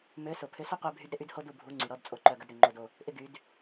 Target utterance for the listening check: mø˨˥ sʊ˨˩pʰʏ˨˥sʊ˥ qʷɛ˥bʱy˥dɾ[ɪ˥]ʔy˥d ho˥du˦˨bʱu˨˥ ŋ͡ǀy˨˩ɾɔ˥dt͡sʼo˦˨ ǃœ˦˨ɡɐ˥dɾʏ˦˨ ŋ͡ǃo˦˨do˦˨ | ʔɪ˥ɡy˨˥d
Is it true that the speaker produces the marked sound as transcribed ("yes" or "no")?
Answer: yes